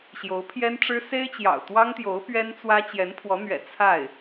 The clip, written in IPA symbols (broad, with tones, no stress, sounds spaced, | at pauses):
ɕ j o˧˥ ʊ̯ pʰ j ɛ˥ n ʈ͡ʂ ɻ̩˥ s e˥ ɪ̯ t͡ɕ j ɑ̰˨˩ ʊ̯ t̪ w ɑ˥ ŋ t̪ j o˧˥ ʊ̯ p ɥ ɛ˥ n t͡s w ä˥ t͡ɕ j ɛ˧˥ n pʰ w ɔ˧˥ n̪ ɥ ɛ̰˨˩ t͡sʰ a˥˩ ɪ̯